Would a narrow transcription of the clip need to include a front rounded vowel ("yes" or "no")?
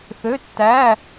yes